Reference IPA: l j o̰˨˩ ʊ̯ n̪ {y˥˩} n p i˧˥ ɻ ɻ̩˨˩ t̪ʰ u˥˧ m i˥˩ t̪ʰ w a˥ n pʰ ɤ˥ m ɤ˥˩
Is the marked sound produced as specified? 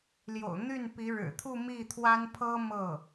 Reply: yes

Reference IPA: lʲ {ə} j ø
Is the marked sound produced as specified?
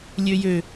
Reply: no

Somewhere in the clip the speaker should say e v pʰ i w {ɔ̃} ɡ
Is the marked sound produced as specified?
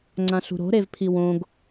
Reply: no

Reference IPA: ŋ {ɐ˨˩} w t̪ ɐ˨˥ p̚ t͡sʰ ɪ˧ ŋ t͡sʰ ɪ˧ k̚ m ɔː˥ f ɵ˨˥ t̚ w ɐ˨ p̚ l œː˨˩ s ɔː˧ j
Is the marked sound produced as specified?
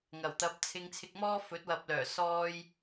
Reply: yes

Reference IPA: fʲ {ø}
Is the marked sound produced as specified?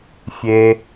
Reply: no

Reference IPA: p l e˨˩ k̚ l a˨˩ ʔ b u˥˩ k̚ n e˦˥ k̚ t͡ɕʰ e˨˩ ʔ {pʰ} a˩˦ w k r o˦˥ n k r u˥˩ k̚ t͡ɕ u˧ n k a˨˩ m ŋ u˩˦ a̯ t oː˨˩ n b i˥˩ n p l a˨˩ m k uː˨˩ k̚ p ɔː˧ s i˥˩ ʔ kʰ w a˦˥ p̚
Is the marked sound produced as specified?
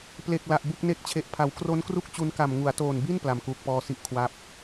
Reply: yes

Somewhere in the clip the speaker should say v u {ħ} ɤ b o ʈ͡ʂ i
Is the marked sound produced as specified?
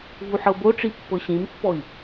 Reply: yes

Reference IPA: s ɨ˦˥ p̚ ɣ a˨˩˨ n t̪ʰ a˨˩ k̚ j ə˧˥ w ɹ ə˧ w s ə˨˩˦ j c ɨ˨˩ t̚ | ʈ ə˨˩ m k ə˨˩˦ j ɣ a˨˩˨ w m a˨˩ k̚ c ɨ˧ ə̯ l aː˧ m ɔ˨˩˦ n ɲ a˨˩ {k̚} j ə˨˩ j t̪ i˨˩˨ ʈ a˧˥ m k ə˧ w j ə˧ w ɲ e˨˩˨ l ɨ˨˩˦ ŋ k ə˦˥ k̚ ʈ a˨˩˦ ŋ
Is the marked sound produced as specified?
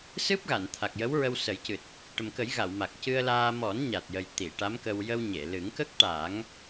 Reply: no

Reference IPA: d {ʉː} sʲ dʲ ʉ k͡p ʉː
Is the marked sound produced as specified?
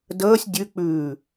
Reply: no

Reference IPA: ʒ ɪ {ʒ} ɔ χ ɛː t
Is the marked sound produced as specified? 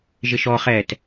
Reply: no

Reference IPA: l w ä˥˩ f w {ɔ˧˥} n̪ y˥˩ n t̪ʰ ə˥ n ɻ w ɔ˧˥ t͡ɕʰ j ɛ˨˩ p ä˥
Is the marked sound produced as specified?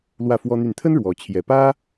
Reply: no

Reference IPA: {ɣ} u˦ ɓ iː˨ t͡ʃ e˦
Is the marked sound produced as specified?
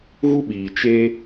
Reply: yes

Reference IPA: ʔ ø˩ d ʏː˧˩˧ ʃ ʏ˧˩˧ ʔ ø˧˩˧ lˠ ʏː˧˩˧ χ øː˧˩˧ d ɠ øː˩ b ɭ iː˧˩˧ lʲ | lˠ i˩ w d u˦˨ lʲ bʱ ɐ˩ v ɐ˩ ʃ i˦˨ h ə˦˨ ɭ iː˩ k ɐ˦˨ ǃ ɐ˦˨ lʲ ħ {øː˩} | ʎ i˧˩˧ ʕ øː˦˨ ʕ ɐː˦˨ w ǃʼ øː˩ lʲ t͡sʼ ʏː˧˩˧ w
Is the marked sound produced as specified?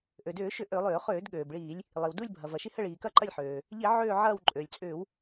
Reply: yes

